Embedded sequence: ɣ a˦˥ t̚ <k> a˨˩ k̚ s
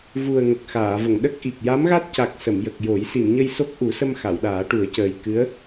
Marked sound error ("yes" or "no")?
yes